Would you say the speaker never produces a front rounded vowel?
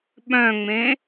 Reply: no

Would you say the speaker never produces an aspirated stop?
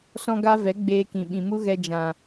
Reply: yes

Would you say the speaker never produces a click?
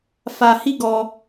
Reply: yes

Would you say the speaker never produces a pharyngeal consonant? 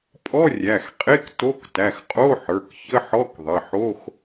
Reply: no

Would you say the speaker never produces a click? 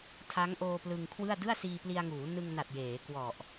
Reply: yes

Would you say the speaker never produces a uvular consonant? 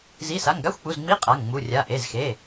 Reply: no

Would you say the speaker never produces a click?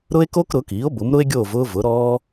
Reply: yes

